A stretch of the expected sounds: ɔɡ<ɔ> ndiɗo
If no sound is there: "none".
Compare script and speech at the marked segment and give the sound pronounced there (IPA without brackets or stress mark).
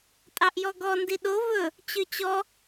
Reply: ɔ